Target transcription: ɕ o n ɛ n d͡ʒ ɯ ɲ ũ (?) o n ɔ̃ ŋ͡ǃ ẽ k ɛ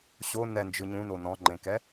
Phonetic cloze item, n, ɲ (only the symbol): n